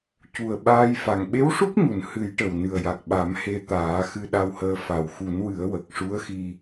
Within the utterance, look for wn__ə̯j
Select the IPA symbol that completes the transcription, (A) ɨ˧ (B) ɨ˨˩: B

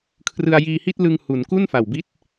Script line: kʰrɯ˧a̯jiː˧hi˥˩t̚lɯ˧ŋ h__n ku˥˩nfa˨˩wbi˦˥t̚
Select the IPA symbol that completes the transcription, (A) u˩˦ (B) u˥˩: A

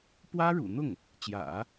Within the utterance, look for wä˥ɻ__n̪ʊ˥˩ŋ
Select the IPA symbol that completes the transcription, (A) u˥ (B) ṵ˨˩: B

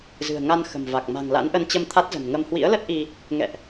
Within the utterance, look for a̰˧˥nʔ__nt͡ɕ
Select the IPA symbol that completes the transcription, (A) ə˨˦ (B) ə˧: B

